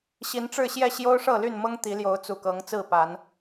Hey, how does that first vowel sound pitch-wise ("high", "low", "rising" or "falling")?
rising